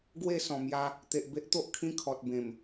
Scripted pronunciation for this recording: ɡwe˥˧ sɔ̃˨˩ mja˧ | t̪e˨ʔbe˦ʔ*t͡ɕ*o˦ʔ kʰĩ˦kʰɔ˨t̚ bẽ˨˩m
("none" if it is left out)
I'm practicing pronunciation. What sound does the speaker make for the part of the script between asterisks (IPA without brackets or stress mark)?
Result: t̪